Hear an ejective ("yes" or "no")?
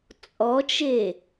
yes